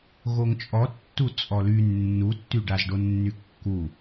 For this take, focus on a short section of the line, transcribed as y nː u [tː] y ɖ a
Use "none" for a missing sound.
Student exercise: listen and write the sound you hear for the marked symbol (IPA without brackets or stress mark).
tː